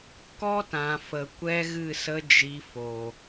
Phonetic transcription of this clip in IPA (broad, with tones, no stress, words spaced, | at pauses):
kɔ˦tã˨fə˨ kʷɛ˦ɣɨ˦˨sə˦ d͡ʒi˧ fo˨